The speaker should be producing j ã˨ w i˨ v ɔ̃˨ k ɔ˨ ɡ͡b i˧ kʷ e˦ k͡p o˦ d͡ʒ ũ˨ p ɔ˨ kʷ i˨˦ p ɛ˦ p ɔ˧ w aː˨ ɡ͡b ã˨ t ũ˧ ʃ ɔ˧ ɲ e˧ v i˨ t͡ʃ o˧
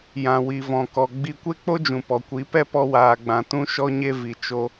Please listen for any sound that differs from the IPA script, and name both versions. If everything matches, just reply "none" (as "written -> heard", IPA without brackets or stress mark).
none